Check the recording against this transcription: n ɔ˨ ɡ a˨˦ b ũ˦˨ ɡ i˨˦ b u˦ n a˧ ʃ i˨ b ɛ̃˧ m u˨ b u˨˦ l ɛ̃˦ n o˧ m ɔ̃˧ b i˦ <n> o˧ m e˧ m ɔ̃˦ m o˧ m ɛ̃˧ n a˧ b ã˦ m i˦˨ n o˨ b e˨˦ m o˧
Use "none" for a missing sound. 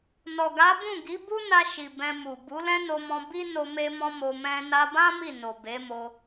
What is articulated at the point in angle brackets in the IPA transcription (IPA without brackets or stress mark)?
n